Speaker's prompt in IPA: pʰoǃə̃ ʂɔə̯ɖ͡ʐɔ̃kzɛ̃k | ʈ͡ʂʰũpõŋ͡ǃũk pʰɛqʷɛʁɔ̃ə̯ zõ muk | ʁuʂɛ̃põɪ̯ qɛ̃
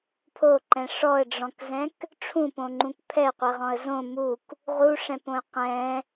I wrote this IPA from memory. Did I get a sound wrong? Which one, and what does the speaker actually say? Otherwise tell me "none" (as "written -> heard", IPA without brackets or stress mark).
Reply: ə̃ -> ɛ̃